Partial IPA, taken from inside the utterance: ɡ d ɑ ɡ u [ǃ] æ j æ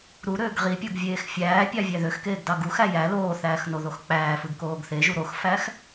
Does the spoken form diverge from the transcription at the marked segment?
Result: yes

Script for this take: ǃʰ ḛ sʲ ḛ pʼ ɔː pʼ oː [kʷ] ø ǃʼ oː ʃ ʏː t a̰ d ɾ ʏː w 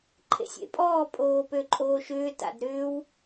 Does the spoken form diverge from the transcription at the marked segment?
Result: yes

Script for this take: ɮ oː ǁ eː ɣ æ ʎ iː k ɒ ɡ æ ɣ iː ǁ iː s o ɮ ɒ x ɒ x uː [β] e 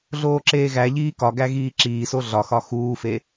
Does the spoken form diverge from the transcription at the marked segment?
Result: yes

